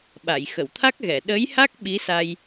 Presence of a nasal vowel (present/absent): absent